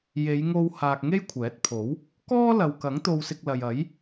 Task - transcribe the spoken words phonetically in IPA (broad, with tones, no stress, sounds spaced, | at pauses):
j e˨˧ j ŋ o˧ w h aː˧ k̚ ŋ e˥ j kʷʰ ɛː˨˥ t̚ pʰ o˨˥ w | k ɔː˥ l ɐ˨ w k ɐ˨˥ ŋ t̪ o˧ w s ɪ˧ k̚ l ɐ˨ j ɐ˨˥ j